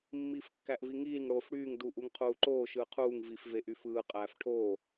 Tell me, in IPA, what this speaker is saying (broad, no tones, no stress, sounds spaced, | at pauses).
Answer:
mː iː f kː æ ʔ v i ŋ iː ŋ ɽ oː f ɽ yː ŋ d uː ʔ u ŋ qʰ uː ǃ oː ʃ ɯː qʰ uː ŋ v i f v e ʔ y f ɯː qʼ æː f ʈʰ oː